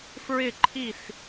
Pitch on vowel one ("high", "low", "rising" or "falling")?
falling